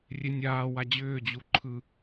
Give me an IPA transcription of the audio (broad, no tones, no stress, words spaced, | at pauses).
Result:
rʲenʲaːwa d͡ʑʏːd͡ʑu ǃʰɯ